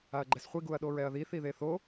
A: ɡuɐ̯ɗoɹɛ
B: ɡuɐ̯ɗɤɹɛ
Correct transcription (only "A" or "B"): A